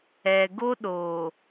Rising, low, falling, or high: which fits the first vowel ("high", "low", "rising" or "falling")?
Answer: low